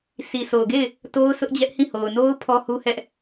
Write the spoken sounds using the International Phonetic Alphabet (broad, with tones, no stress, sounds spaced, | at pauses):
sʰ i˨ s o˨ ʊ̯ ɡ e˦˨ ɪ̯ | t o˦ ʊ̯ sʰ ʊ˦ ʔ d͡ʑ ɛ˦ ʔ h ĩ˦˨ h o˨ ʊ̯ n o˦ ʊ̯ pʰ ɔ˦ h u˦ h ɛ˦ ʔ